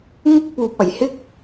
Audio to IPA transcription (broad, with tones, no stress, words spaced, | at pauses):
ŋɪ˥k̚puː˨p̚ɐ˨˩jhɪ˥k̚